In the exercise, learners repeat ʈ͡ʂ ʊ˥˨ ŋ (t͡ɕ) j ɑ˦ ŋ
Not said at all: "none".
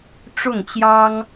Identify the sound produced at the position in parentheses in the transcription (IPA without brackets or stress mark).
t͡ɕ